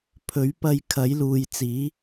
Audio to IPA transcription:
pʰ ɵ˨˥ ɥ p ɐ˧ j kʰ ɐ˨˥ j l uː˨ j t͡s iː˨˥

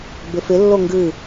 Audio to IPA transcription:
b ɪ f ɪ lː o ŋ ɡ ɨ

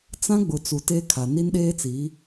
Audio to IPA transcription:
t͡s ã˦ ɡ͡b ʊ˨ t͡s u˨ t e˦ kʰ a˨ n i˦ n ɗ eː˦ t͡s i˨˦

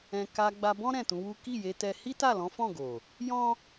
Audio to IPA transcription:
ɛ̃˧ k a˧ ɡ͡b a˧ b ɔ̃˦ ɾ ɛ̃˦˨ t ũ˨˦ w u˦ k i˦˨ j e˧ t ɛ˧ h i˦ t a˦˨ l ɔ̃˨˦ f ɔ̃˦˨ ɡ o˨ | j ɔ̃˦

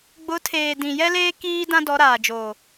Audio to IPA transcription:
ɡ͡b ʊ˨˦ tʰ eː˨ d ĩ˨ j ɛ˦ l eː˦ k iː˦ d ã˦ d ɔ˨˦ ɾ aː˨ d͡ʒ oː˨

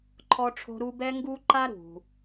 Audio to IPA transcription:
ǃʰ ɔ˥ ʈ͡ʂʰ o̤˥ ɾ u˥ b ɛ˥ ŋ ɡ u˥ ǃ a˥ ɾ ṳ˩

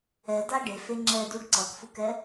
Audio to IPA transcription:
ɛ d̪ a ɖ e f e ŋ͡ǁ ɛ d̪ u ɖ ǀ ʌ k f u k ɛ

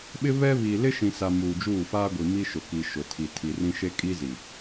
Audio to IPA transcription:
ɓ ɪ˦ β ɛ˦ β i˨ l ɪ˦ ʃ ĩ˨ s a˨ m uː˨ d͡ʒ uː˦˨ f aː˦ ɡʷ i˨ m i˦ ʃ ʊ˨ k i˨ ʃ ʊ˨ tʰ i˨ tʰ i˨ r ĩ˦ ʃ e˦ kʼ i˦ z i˨

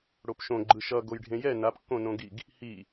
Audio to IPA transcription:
ɽ o p ʃ õ ɡ͡ǃ ɯ ʃ ʌ ɡ o j ɖʱ ẽ j ɛ n a p kː õ n õ ɡ i ɡ | h i

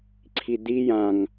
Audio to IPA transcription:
ǀʰ i d̪ i j ã ŋ

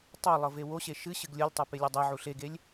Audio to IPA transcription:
tˤ o lˠ ɤ v e w o ɕ e ʃ ɨ ɕ ɨ ɡ lʲ ɤ lʲ tˤ ɤ p e lʲ ɤ dˤ ɛ ʕ u ɬ e ɡ e lʲ

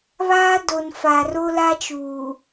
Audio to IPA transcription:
β aː˦ d o˨ n f a˨ r o˦ l a˦ t͡ʃ uː˨

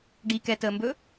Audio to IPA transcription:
ɖ i k ɛ t əː m b ɵ

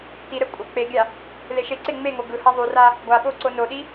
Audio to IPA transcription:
t i ɾ ɛ kʷʼ ʌ k͡p e ɡʲ a | l e ʃ e ǀ e ŋ͡m e ŋ o ɡ ɯ h a ðˤ u r a | ɡʷ a ɓ o ǀ o n o ɗ i

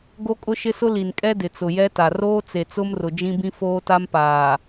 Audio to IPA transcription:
ɡ o˦ kʼ ʊ˦ ʃ ɪ˦ s ʊ˦ l i˨ n kʼ ɛ˦ d ɪ˨ t͡s ʊ˨ j ɛ˦ t a˨ r oː˦ t͡s e˨ t͡s ʊ˦ m r ʊ˨ d͡ʒ ĩ˦ b ĩ˦ f oː˦ t a˦ m p aː˨

